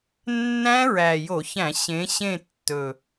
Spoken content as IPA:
nː æ̃˦˥ ɹ æ˨˩ j o˧˩˧ ç æ̃˧˩˧ ɕ ẽ˨˦ ɕ ẽ˦˨ tː ɵ˨˩

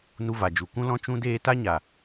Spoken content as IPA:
n u˧ v a˨ d͡ʒ u˨ k ũ˦ l ɔ̃˦ t͡ʃ ũ˦ d eː˦ t a˦ ɲ a˨

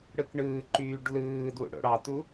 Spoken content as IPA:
ɽ ɯ k ɳ ɯː ǃ yː ɖ l ɯː d w ṵ ɽ o̰ ɽ ɑ t u

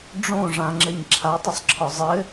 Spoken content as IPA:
ɖ͡ʐ õ ʐ ã ŋ͡ǁ ɘ ɲ ǁʰ a tˤ ə sˤ ǁʰ ɒ zˤ ɘ

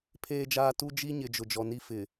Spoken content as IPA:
pʰ eː˦ d͡ʒ aː˦ t u˦ d͡ʒ i˦ ɲ ɪ˨ d͡ʒ ʊ˨ d͡ʒ ɔ˨ n i˦ f ɪ˨

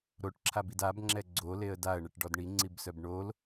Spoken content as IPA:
ɾ o ʈ ǁʰ a b i d a b ŋ͡ǁ ɛ ɡ͡ǀ o l e ə̯ d a ə̯ ɳ ɛ ʈ ɖ ɔ d ɳ i ŋ͡ǀ i b s œ b ɳ o l

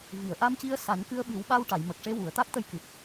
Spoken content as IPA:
v i˨˩˨ ə̯ ʔ a˧ m c i˧ ə̯ s a˨˩˦ n k ɨ˧ ə̯ ɓ ɨ˨˩˦ w ɓ a˧ w ʈ a˨˩˨ j m ə˨˩ k̚ ʂ e˧ w u˨˩˨ ə̯ t̪ a˦˥ k̚ t̪ ə˧ j k ɨ˨˩ p̚

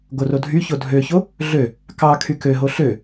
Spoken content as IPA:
ɡ o r o dʱ y ç o dʱ ø ç o | ɮ ø | k ɑ kʰ y k ø ɦ o ɬ ø

